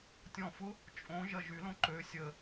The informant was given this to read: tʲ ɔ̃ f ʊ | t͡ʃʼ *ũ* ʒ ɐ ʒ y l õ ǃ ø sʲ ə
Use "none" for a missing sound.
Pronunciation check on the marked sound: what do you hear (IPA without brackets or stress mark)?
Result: õ